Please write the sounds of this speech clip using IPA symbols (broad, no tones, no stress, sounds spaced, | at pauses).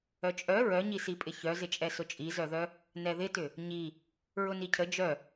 œ t͡ʃʼ œ ɹ œ ɲ i s i pʼ ɪ ç œ z ɪ t͡ʃʼ ɛ s ʊ t͡ʃʼ i z œ ð œ | n ɛ ð ɪ t ʏ | ɲ i | ɹ ʊ n i cʰ ə d͡ʒ œ